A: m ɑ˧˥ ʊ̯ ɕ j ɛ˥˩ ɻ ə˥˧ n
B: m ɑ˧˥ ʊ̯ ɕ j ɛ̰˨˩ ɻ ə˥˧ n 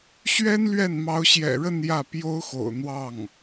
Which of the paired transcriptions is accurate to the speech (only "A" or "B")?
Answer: B